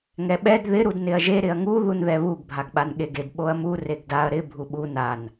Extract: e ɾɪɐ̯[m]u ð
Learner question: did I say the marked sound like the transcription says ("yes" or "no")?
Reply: no